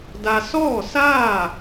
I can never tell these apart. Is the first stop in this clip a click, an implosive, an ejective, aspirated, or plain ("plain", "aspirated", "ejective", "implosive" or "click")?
plain